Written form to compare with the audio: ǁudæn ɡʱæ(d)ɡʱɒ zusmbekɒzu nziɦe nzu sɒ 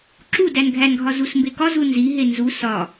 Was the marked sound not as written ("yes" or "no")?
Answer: yes